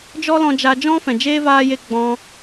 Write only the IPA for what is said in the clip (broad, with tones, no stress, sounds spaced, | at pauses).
d͡ʒ ɔ˦ l ɔ̃˧ d͡ʒ a˧ d͡ʒ ɔ̃˦ f ɛ̃˨ d͡ʒ eː˦ v aː˦ j e˦ ɡ͡b ɔ̃˧